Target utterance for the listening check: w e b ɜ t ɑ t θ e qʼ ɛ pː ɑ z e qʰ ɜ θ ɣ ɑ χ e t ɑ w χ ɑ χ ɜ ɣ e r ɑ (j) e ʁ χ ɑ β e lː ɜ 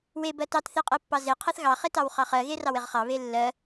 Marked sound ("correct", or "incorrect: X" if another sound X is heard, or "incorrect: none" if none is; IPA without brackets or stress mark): incorrect: w